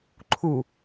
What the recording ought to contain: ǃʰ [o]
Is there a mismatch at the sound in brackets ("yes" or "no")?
yes